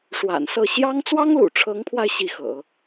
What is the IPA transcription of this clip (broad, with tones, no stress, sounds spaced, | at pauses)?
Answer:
ʂ w a̰˨˩ n s ɤ˥˩ ɕ j ɑ˥ ŋ t͡s w ɑ˥ ŋ l ṵ˨˩ ʈ͡ʂʰ ɤ˧˥ ŋ pʰ w a˧ ɪ̯ ɕ i˥˩ x ɤ̰˨˩˦